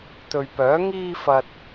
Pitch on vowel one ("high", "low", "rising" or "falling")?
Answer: low